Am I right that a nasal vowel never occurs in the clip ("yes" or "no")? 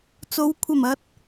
yes